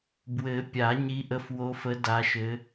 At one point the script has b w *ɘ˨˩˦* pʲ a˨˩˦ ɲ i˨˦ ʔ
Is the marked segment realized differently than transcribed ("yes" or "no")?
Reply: no